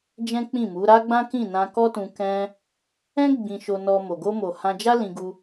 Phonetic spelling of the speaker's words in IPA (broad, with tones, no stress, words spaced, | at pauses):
d͡ʒɛ̃˦k͡pĩ˦˨mu˨˦ ɾa˦ɡ͡bã˦kĩ˦˨ nã˧kɔ˦tũ˧ kɛ̃˦ | ɛ̃˦ ɡ͡bĩ˧ʃo˧nɔ˧ mo˨ɡo˧mo˨ hã˧ d͡ʒa˦lĩ˧ɡu˧